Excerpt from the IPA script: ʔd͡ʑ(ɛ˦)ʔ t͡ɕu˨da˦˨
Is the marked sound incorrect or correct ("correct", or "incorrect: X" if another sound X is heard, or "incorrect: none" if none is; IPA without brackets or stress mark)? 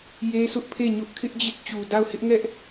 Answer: incorrect: ɪ˦